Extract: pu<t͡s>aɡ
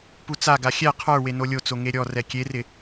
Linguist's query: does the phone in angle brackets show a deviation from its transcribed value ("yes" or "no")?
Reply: no